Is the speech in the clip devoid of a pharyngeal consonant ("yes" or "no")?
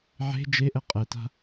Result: no